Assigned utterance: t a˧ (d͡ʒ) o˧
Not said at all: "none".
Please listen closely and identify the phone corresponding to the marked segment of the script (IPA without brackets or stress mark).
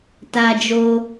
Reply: d͡ʒ